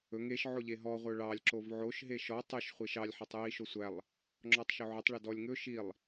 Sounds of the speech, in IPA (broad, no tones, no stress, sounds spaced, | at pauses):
ɵ ŋ e ʃ ʕ o ʎ e ɦ ɔ ʁʷ œ ɭ ɑ lʲ ǁ o v ʕ o ʃ ɦ e ʃ ɔ tˤ ɵ ʃ χʷ e ʃ ɑ lʲ ħ ɑ tˤ j i ʃ o sʷ æ lˠ | ŋ͡ǁ ɔ tˤ ʃ ɵ ʕ ɵ tˤ ɭ ɵ d ɔ lʲ ŋ ɵ ʃ i lˠ